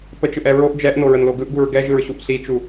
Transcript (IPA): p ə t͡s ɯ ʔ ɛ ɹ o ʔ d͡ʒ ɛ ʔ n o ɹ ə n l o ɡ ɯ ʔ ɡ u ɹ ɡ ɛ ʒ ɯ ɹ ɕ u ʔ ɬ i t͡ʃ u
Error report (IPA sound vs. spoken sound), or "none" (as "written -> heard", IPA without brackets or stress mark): t͡s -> t͡ʃ